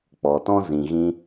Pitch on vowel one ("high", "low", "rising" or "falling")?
low